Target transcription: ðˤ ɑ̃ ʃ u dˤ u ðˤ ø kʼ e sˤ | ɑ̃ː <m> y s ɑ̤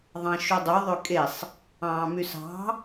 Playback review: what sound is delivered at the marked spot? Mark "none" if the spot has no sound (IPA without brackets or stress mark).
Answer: m